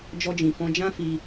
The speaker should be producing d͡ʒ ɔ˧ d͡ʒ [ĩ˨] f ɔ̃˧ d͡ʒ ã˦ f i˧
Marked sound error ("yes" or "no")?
no